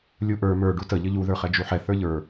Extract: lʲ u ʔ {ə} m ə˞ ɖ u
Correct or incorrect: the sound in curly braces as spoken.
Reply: incorrect: ə˞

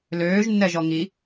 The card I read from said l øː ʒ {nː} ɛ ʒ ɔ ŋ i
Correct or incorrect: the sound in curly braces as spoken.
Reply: correct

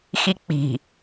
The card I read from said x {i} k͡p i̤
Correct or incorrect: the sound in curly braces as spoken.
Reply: correct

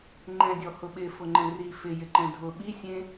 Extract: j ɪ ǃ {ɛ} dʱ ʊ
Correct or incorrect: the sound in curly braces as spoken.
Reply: incorrect: ɛ̃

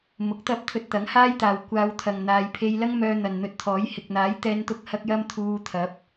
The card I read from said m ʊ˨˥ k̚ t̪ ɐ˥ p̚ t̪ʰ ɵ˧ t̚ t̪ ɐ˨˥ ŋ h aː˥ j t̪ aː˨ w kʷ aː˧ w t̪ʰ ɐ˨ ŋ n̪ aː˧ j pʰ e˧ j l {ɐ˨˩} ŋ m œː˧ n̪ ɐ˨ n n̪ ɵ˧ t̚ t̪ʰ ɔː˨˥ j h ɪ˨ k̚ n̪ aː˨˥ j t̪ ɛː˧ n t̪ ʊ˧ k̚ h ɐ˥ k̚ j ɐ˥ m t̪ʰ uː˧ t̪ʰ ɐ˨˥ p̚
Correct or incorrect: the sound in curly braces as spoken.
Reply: incorrect: ɐ˥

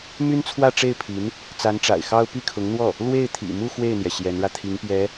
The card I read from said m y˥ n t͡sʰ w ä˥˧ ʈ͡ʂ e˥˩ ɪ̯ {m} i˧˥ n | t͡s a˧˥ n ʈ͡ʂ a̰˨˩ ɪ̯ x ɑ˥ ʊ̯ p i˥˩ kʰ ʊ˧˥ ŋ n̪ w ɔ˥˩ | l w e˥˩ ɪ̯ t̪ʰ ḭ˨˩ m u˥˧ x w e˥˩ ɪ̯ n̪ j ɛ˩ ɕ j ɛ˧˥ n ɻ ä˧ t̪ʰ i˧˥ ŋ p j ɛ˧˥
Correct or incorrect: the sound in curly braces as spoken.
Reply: incorrect: pʰ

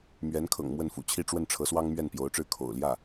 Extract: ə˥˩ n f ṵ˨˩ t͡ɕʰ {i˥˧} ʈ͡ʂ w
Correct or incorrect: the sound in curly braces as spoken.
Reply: correct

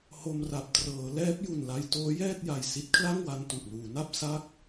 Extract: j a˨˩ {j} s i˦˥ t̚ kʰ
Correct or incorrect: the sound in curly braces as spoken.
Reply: correct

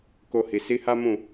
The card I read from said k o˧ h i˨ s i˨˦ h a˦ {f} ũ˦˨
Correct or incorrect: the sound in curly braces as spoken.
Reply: incorrect: m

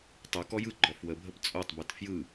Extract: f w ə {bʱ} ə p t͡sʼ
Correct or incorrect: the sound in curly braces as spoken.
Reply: correct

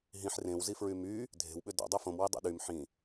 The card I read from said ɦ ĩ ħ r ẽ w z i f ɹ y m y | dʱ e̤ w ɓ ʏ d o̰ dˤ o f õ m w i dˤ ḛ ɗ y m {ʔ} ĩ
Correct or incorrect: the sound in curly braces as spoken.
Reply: incorrect: ħ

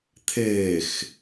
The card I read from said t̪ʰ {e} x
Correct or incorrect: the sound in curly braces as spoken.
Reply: incorrect: eː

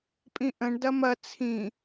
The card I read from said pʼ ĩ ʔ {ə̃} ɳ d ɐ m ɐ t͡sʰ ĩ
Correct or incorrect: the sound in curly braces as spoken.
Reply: correct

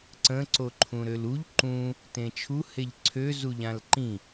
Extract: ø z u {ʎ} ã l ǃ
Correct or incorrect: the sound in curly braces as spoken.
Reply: correct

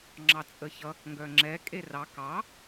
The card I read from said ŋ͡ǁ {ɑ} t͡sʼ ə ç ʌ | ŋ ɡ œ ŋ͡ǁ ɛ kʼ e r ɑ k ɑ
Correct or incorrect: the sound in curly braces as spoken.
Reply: correct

